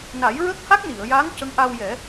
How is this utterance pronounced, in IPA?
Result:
na˨˩˦jɹə˦˥k̚ ha˦˥k̚ni˨˩˨ə̯jaː˧˥ŋ cə˧˥ŋʔa˧wjɛ˨˩˦

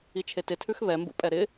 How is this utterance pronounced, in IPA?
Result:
it͡ʃʰetɪtʰʉx βɛmbṵpʼɛ ɾɪ

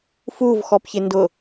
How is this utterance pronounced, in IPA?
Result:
fuvxɔpçɪndʊ

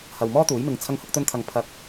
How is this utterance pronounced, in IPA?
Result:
hɐ˨wmɔː˥t̪uː˨˥jmɪ˨ŋ t͡sʰɐ˧ŋhʊ˧k̚t̪ɵ˧nt̪ʰɐ˨ŋ pʰɐ˨˥k̚

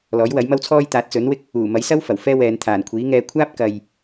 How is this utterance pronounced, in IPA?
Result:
lɔː˨˥jwɐ˨˥jmɐ˥wt͡sʰɔː˥j t̪aː˨˥t̚t͡sɵ˨˥nwɪ˥k̚ | uː˨˩ mɐ˨˥jsɐ˥w fɐ˨˩wfɛː˥wɛː˨˧n t̪ʰaː˨˩nkʷʰiː˨˥ŋɛː˧ kʷʰaː˥p̚ kɐ˨j

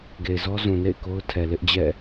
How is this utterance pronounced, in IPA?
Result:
ɡe˨ɪ̯zɔ˦zũ˨ nḛ˦˨ɪ̯ko˦ʊ̯tʰɛ˨ lɪ˦ʔd͡ʑɛ̰˦˨

